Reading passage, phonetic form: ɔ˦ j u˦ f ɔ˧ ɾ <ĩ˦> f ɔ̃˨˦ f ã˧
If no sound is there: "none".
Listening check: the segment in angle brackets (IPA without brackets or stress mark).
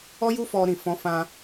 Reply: ĩ˨